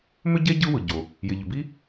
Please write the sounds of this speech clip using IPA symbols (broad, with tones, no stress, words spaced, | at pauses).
mʏ˥ɟe˥ ɟɯ˥wɯ˩ɟo˩ | jɪ˩ʎʏ˩ bi˥